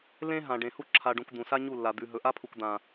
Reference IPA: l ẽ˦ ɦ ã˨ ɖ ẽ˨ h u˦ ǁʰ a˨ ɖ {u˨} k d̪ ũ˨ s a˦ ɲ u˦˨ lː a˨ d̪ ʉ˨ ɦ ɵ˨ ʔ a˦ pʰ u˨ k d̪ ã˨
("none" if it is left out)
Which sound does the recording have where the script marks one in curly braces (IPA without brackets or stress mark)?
ũ˨